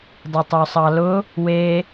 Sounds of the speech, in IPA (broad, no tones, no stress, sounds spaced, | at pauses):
dˤ ʊ tˤ o sˤ ɑ l ʊ | w e